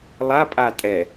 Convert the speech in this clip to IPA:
lˠ a pʼ a tʼ ɛ

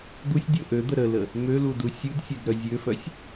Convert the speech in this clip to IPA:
d̪ u sʲ dʲ o ʔ ø d̪ ə ɾ ə l ə | m ø l u d u sʲ u d sʲ ø d ɾ œ zʲ ø f œ sʲ

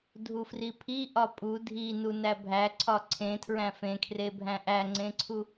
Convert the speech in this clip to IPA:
dʱ u f r i pʰ i ʔ ɒ pʼ u dʱ i n u n æ bʱ æ ǀʰ ɒ ǀʰ ẽ tʰ ɹ æ̃ f ẽ kʰ r e bʱ æ̃ ʔ æ ŋ͡ǀ ẽ ǀʰ u

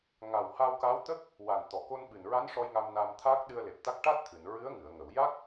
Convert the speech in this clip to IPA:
ŋ a˨˩ w h a˧ w k a˧˥ w t̪ ə˦˥ k̚ | w a˨˩ n t̪ ɔ˨˩˨ k o˧ n ɓ ɨ˨˩ n ɹ a˧˥ n ʂ ɔ˧ j ŋ a˧ m n a˧ m t̪ʰ aː˦˥ k̚ ɗ ɨ˧ ə̯ l e˨˩ p̚ t̪ a˦˥ k̚ ʈ a˦˥ t̚ t̪ʰ ɨ˨˩˨ n ɹ ɨ˧˥ ə̯ ŋ ɨ˨˩˨ ə̯ ŋ ə˨˩˨ w j a˦˥ k̚

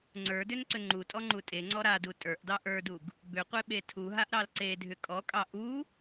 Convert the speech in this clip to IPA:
ŋ͡ǀ ə˞ d ʏ n ǀ ʏ ŋ͡ǃ u tʼ ɔ ŋ͡ǃ u tʼ e ŋ͡ǀ ɔ ɾ a d u tʼ ə˞ ʔ d ɑ ʔ ə˞ d u ɡ | b ʏ qʷ e ɓ e tʰ u ɦ a ʔ ɾ ɑ l ǀ e dʱ ʏ kʼ ɔ kʼ ɑ ʔ u

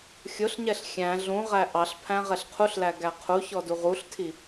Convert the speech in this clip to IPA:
xʲ ʊ ɬ ɲ ɛ ɬ xʲ æ̃ ɮ ũ ʁ æ ʔ ɑ ɬ pʰ æ̃ ʁ ɛ ɬ qʰ u ɬ l æ ɡ æ qʰ u ç ɔ d u ʁ u ɬ tʰ i

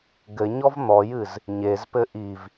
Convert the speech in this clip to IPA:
ɡ ɘ ɲ ɔ v n̪ ɔ j ɨ z | ɲ e z p ɘ ʔ i v

